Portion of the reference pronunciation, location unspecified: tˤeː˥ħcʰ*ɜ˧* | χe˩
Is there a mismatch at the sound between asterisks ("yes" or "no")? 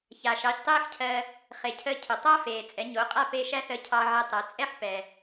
no